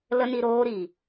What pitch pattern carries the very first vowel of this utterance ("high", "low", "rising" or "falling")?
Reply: high